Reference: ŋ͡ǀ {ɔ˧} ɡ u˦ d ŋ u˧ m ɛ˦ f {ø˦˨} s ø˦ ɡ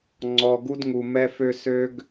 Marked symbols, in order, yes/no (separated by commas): yes, no